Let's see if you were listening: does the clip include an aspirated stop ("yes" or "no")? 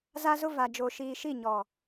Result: no